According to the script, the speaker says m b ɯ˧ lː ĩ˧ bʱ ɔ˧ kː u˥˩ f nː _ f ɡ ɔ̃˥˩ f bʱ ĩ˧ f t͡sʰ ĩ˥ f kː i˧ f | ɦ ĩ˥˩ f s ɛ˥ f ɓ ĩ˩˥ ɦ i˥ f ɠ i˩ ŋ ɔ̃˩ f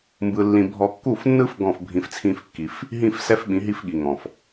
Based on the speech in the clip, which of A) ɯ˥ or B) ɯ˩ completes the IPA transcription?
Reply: A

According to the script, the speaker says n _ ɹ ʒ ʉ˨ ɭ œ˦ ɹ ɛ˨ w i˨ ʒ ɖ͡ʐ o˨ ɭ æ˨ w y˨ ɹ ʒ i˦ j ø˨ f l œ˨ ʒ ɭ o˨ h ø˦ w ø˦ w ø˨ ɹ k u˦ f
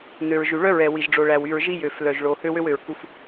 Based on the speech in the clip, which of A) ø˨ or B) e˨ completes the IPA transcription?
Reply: A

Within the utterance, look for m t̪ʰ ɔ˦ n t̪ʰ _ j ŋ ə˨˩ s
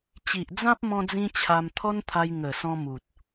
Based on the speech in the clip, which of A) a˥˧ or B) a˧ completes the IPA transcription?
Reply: B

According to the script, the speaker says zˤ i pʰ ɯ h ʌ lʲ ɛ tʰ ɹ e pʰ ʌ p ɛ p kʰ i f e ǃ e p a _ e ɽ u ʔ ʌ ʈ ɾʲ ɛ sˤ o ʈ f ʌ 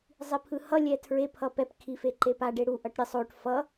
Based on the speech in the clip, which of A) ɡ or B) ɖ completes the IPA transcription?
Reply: B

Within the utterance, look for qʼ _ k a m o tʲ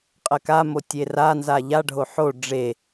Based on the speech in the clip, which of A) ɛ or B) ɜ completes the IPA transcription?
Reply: B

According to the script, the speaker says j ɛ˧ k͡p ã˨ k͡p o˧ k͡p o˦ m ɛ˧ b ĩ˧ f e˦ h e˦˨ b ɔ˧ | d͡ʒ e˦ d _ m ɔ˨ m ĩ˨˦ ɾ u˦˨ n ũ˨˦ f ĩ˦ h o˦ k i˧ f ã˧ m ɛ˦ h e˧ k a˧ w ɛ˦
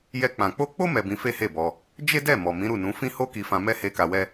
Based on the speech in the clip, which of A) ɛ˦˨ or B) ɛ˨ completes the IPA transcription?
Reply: A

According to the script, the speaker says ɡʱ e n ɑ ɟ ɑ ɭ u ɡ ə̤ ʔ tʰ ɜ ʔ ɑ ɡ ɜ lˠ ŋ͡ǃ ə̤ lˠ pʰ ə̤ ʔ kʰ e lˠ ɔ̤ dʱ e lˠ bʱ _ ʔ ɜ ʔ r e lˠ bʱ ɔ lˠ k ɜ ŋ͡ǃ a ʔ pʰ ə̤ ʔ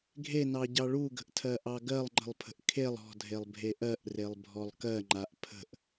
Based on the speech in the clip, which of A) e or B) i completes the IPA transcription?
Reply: A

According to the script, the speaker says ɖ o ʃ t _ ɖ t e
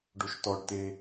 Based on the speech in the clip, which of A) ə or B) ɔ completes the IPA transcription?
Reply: B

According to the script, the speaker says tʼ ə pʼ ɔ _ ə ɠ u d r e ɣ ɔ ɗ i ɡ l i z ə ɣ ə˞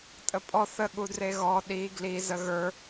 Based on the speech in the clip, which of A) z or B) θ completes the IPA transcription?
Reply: B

